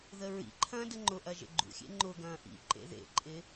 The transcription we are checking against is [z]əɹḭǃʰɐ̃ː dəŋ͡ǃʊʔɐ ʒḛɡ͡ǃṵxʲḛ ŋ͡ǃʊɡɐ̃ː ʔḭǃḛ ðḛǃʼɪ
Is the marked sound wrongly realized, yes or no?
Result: yes